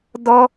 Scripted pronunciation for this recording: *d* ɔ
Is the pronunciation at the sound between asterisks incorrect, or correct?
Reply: correct